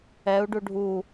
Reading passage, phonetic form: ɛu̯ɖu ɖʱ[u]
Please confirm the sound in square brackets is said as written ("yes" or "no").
yes